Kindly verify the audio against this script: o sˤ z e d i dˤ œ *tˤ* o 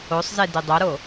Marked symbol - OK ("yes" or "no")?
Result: no